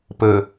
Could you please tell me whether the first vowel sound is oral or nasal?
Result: oral